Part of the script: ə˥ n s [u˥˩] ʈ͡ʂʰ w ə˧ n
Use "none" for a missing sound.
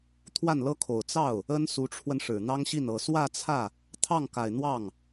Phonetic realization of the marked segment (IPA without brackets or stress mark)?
u˧˥